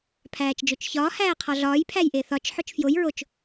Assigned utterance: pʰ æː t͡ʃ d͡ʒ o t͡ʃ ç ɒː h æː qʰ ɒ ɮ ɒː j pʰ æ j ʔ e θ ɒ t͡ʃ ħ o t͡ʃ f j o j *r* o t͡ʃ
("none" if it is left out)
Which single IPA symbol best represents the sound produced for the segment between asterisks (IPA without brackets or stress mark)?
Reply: ɹ